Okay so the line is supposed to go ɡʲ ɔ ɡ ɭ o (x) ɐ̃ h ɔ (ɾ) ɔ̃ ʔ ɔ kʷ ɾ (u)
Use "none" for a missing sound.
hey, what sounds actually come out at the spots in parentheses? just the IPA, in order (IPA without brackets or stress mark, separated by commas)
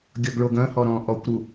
ɡ, ɾ, u